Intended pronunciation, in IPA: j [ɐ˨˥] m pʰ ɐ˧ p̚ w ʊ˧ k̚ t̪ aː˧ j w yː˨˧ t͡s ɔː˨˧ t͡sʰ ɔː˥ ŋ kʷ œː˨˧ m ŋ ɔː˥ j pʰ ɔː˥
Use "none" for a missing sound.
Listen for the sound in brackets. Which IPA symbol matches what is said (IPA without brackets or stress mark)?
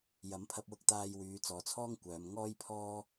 ɐ˨˥